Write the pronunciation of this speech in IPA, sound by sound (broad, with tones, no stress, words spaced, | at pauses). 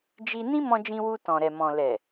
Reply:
d͡ʒi˧ nĩ˦mɔ̃˧d͡ʒĩ˧ wu˧tɔ̃˨ɾɛ˨mɔ̃˨ lɛ˨